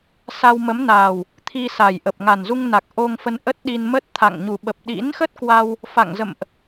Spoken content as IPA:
sa˧wmə˨˦mnaː˨˩w | t̪ʰi˧sa˨˩jʔə˨˩p̚ ŋa˨˩nzu˧ŋna˨˩k̚ ʔo˧ŋfə˧n ʔə˦˥t̚ɗi˧nmə˦˥t̚t̪ʰa̰˧˨ŋ ɲu˨˩ɓə˨˩p̚ ɗḭ˧˥nxə˦˥t̚kwa˧w | fa̰˧˨ŋzə̰˧˨mʔ

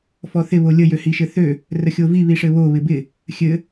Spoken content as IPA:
fɔθɪ βolʲə jøhiʃɘθø | rəxʲovi βiʂɘβo βɪbɪ | xʲɘ

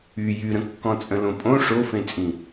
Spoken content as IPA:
y jyɾə̃ kːɔ̃t͡sʼə̃lõpʼõ ʂofẽt͡sʼĩ

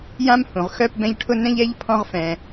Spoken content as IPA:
jã˥m hũ˩ʁ xœ˦p bɛ̃˦ʎʈʰʊ˥ nɛ̃˥ʎɛ˥ʎpʰɔ̃˦ʁfɛ̃˩

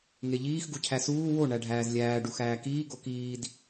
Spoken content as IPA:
ŋeʎiːx ɡucʰæsuː wo ɳæɖʱæːzlʲæː ɖuxæːkiː ɡokiːd

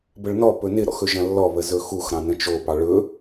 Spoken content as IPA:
bəɭnɔ pɵnɪ ɾɔ̰xɵʒɐ̃lːɔ βəzɵxux ɾɑ̃nə̃t͡ʃo pɑɭɵ

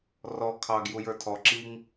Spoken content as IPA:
rɔ kʰɑɡ jujə˞tʰɔ ǁiŋ

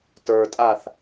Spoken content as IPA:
tə˞tʼaθ

